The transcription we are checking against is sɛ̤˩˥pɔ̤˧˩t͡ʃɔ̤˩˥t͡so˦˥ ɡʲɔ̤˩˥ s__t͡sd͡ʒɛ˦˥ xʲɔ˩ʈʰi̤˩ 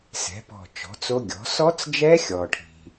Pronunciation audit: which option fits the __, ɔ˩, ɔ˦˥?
ɔ˦˥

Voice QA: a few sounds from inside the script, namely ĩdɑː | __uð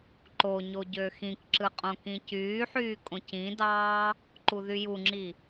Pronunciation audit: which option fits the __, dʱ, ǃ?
ǃ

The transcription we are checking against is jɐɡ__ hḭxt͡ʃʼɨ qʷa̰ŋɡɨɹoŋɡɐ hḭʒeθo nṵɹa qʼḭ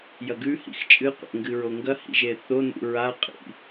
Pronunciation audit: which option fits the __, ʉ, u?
ʉ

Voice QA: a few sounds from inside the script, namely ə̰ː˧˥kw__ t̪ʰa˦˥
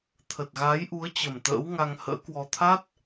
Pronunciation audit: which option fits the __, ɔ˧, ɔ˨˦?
ɔ˧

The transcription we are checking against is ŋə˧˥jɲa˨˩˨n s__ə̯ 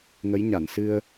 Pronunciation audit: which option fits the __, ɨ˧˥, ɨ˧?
ɨ˧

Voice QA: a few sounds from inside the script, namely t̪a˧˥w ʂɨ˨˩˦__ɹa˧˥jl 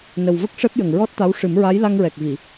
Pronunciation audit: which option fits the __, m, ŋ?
m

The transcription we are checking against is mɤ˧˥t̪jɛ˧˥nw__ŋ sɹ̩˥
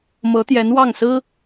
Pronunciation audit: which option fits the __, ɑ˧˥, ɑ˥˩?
ɑ˥˩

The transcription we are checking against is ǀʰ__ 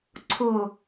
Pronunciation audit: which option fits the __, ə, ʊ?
ʊ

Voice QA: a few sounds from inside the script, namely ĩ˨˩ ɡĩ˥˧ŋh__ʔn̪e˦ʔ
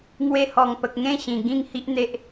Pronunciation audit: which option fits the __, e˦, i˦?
i˦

